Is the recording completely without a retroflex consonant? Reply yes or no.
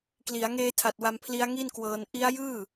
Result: yes